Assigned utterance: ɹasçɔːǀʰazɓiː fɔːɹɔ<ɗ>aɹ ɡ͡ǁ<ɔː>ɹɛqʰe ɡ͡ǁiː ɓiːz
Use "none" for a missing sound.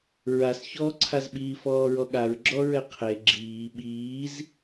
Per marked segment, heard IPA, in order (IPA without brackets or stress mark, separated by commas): ɠ, ɔ